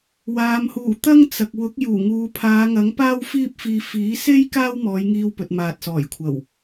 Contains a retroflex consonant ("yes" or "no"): no